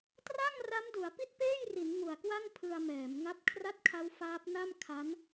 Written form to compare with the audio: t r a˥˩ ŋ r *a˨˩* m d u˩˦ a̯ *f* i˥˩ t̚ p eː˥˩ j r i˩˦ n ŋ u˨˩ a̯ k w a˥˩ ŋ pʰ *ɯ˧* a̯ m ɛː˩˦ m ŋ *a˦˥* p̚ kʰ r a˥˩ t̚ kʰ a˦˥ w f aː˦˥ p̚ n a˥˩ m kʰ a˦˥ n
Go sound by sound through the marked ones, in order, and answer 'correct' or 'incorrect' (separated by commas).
incorrect, incorrect, correct, correct